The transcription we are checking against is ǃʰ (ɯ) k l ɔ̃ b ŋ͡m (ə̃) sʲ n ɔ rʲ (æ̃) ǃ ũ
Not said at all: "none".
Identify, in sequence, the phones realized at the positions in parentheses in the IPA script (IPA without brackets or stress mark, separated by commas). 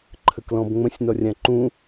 ə, ə̃, ã